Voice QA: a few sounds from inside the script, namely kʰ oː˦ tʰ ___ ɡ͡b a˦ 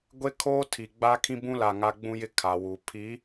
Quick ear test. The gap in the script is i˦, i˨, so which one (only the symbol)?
i˨